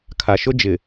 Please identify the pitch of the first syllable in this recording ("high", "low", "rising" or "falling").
low